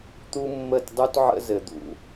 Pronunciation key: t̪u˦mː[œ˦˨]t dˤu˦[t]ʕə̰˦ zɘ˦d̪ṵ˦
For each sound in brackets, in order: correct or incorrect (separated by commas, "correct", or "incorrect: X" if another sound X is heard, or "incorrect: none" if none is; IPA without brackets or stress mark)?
incorrect: ə˦˨, correct